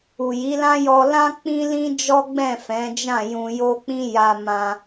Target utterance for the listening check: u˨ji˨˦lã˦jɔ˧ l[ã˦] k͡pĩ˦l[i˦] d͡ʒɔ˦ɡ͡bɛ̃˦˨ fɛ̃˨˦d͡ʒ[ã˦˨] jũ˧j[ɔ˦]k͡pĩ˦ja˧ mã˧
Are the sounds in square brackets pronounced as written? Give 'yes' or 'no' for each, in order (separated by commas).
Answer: yes, no, yes, no